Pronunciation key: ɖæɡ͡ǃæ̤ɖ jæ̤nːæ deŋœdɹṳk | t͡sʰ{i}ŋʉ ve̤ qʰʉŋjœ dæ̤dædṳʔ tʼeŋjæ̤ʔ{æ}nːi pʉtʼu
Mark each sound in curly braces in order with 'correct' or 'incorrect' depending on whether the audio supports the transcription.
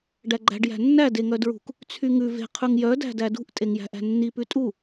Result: incorrect: y, incorrect: æ̤

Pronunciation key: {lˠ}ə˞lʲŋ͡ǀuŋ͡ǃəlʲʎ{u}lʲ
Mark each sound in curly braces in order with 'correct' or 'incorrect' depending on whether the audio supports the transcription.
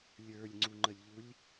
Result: incorrect: lʲ, correct

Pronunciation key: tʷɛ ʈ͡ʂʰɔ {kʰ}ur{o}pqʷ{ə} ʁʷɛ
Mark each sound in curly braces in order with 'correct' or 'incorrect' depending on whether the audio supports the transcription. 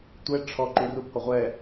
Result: incorrect: ǃ, incorrect: u, correct

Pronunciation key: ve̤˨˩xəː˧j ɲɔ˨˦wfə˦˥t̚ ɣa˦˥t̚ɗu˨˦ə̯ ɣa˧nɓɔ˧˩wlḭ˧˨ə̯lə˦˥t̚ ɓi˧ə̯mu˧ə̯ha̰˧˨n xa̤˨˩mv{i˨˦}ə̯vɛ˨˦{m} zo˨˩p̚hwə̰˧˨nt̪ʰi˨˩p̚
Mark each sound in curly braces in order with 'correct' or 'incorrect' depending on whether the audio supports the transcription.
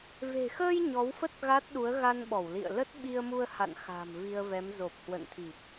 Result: incorrect: i˧, correct

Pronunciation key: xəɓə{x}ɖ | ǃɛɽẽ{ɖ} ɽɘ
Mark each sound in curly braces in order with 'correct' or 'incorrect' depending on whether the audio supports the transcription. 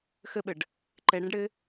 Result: incorrect: none, correct

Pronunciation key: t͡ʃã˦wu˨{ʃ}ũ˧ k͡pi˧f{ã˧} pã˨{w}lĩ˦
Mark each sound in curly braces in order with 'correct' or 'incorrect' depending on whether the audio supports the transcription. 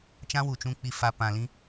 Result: incorrect: t͡ʃ, incorrect: a˧, incorrect: none

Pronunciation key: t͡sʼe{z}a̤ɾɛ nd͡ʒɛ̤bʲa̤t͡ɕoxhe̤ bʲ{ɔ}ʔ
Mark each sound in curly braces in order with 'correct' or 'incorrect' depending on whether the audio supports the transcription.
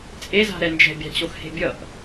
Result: correct, incorrect: ʌ

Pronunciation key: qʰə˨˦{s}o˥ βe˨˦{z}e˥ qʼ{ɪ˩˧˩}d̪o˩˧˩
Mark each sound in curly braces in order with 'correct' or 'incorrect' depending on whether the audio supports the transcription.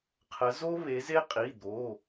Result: incorrect: z, correct, incorrect: i˩˧˩

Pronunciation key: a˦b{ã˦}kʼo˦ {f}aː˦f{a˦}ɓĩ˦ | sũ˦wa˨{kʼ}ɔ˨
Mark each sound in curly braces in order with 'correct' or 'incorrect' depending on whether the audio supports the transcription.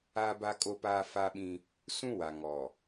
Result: incorrect: a˦, incorrect: p, correct, incorrect: ŋ

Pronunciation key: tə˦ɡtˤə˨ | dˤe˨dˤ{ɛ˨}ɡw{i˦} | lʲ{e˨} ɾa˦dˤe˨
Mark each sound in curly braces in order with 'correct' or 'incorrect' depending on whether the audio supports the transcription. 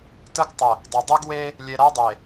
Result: incorrect: ɛ˦, incorrect: e˦, correct

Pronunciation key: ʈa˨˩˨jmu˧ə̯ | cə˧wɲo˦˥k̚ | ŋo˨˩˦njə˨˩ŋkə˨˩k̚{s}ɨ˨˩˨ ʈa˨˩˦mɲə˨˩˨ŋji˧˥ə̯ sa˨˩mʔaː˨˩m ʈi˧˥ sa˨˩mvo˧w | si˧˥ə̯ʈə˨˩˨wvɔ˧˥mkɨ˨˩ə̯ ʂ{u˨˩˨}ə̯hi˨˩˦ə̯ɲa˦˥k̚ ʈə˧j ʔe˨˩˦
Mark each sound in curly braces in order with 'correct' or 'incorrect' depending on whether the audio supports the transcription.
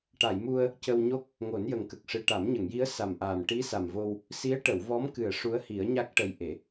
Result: incorrect: ʂ, incorrect: u˧˥

